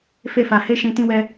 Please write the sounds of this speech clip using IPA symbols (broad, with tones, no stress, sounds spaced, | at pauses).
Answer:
f e˦ f a˧ h e˦ ʃ ĩ˧ t ĩ˦ w ɛ˦